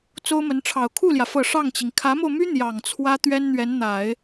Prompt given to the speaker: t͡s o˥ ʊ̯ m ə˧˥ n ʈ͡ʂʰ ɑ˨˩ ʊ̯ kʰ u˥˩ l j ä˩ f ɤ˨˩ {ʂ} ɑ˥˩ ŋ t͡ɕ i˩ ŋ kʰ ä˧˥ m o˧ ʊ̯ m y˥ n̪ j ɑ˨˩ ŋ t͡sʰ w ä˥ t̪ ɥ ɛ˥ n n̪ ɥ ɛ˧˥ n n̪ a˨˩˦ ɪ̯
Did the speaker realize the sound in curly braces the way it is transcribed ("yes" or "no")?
yes